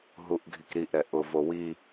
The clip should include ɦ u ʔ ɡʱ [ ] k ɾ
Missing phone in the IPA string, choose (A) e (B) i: B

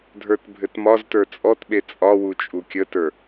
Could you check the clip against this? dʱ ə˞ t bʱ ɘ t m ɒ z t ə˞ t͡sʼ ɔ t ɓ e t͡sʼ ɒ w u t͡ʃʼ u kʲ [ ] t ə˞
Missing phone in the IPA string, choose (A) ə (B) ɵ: A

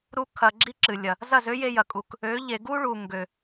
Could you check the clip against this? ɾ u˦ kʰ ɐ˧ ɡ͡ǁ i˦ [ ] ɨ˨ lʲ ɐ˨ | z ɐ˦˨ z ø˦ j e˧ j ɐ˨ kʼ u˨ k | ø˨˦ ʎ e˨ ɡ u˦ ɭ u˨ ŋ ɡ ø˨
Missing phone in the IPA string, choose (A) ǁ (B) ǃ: A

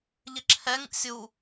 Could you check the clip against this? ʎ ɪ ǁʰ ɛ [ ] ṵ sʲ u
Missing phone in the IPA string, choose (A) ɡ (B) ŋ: B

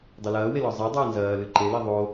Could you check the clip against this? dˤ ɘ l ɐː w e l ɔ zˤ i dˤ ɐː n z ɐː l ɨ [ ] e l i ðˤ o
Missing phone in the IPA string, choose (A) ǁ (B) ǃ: B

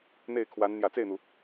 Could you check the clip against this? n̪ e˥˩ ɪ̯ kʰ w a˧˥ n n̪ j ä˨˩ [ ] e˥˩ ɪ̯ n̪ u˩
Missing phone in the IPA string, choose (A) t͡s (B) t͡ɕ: A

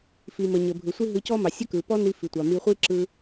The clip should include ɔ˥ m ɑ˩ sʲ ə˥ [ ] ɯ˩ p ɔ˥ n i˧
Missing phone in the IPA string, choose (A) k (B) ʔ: A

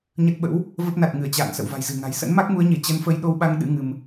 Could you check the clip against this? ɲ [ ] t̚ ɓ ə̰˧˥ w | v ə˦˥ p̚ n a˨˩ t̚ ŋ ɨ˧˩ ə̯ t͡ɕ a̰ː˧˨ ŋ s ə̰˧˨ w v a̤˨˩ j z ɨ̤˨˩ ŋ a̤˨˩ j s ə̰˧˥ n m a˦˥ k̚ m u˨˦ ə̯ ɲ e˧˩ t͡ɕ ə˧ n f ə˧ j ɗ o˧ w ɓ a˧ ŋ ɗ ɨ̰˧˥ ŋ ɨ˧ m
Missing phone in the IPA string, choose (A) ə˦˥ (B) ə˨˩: A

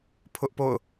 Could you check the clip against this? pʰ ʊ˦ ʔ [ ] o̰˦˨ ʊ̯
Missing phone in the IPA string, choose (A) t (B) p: B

